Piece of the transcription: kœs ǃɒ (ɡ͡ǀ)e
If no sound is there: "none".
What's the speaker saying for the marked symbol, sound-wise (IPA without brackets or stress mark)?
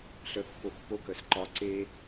ǀ